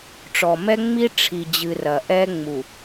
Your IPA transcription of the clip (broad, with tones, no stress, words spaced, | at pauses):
ʈ͡ʂɔ˨mɛ˦ŋ͡mi˦ ʈ͡ʂʰi˨d͡ʑɨ˨ rɐ˨ʔɛ˦ŋ͡mu˨